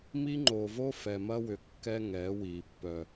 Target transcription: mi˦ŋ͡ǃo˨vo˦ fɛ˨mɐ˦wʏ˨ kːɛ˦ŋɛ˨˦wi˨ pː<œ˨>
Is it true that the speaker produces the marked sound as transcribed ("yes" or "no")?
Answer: yes